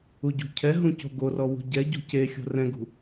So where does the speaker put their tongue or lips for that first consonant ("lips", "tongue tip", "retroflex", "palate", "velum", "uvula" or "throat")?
palate